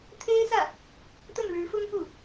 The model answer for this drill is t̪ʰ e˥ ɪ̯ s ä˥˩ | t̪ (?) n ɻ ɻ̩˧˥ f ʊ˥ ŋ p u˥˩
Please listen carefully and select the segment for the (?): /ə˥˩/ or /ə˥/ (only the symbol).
ə˥˩